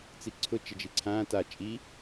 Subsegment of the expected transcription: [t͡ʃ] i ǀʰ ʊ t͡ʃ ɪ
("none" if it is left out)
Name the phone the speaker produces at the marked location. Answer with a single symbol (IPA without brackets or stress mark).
t͡s